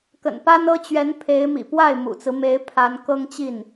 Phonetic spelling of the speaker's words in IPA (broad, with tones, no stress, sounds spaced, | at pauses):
k ə̰˨˩ n p a˥ n ɤ˥ t͡ɕ ɥ ɛ˧˥ n pʰ e˧˥ ɪ̯ m ḭ˨˩ p w a˥˩ ɪ̯ m ṵ˨˩ t͡s ɹ̩˦ m e˧˥ ɪ̯ pʰ a˧˥ n k ɤ˥ ŋ t͡ɕ i˥˩ n